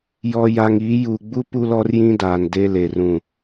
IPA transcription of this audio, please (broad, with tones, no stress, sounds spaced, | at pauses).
j ɔ˨ j a˨ ŋ iː˨˦ j u˨ ɡ͡b u˦ p u˦ l ɔ˦ r j ĩ˦ d aː˨ n d e˦ l e˨ r ũ˦˨